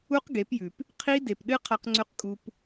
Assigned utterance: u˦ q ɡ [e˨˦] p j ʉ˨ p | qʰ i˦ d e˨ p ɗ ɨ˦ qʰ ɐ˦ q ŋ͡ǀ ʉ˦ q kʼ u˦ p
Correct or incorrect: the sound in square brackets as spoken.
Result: correct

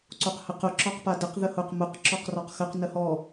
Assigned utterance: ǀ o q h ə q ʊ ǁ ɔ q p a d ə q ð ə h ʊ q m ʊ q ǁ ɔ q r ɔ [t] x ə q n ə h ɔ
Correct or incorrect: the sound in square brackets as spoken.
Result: incorrect: q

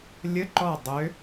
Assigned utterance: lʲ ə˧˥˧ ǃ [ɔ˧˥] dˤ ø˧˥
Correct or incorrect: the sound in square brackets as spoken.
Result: incorrect: ɔ˥˨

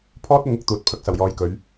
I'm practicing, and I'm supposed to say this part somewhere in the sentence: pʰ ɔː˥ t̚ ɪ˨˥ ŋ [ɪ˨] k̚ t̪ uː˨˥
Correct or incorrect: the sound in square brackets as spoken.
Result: correct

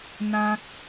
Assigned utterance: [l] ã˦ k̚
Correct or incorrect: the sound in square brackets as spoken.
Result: incorrect: n̪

